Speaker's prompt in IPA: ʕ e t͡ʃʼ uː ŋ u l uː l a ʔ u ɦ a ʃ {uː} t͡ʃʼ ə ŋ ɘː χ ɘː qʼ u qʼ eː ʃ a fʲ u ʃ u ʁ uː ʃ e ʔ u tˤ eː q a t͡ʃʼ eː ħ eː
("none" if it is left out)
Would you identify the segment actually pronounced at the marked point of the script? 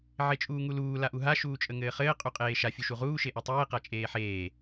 uː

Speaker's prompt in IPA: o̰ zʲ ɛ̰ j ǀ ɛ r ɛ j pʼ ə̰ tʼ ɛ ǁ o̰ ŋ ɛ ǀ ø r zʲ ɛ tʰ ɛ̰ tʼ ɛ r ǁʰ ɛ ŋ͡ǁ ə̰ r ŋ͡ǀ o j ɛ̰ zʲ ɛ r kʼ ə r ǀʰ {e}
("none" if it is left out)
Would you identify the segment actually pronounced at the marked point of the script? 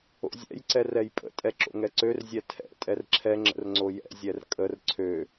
ø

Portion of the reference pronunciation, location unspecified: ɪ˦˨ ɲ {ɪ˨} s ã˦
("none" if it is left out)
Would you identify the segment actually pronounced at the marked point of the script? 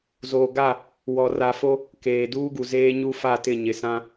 ɪ˨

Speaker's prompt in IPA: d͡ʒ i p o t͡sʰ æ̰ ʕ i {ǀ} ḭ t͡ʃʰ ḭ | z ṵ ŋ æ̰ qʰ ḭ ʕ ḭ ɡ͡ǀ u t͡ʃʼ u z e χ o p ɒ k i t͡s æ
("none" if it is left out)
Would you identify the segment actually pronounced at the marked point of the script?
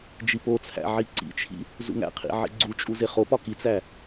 ǀ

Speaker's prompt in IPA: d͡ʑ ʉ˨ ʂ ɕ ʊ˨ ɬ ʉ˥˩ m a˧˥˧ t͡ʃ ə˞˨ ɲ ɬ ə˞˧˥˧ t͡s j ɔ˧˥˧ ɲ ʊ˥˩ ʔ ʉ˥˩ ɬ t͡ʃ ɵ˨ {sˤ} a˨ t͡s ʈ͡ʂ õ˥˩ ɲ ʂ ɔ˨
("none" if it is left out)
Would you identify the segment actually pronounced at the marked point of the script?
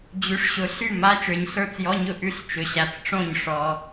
ɕ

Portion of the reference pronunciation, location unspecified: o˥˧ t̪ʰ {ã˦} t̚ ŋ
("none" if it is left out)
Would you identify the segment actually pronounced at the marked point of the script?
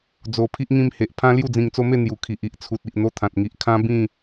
ã˨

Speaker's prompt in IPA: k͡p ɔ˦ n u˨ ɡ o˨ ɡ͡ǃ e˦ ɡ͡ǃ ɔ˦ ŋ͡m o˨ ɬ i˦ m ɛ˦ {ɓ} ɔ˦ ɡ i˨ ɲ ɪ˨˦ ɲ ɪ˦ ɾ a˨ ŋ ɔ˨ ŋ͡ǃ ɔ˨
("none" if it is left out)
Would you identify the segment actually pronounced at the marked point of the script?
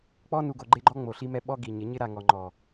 ɓ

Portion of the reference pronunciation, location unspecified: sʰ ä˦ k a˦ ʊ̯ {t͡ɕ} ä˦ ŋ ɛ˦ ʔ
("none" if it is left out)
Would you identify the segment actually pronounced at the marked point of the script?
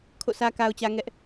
t͡ɕ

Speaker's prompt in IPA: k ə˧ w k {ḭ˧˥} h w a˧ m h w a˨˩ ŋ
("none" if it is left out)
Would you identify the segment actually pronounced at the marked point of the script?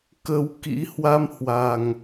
ḭ˧˥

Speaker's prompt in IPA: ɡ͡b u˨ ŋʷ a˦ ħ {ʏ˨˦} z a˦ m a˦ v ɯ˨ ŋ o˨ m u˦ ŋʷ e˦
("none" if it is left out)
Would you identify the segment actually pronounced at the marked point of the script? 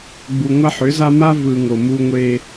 ʏ˨˦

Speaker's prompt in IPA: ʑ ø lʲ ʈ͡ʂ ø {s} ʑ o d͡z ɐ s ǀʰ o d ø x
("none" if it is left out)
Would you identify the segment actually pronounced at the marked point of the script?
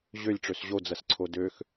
s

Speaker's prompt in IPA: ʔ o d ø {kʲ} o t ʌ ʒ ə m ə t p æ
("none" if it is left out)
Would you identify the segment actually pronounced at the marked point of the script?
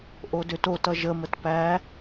t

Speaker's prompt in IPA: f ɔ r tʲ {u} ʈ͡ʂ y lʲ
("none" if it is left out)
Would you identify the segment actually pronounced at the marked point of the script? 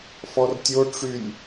o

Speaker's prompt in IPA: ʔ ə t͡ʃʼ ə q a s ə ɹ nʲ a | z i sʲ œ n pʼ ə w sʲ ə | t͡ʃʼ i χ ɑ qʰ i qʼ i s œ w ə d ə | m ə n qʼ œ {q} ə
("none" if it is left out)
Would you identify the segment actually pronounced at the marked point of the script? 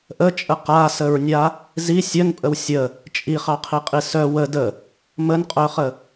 χ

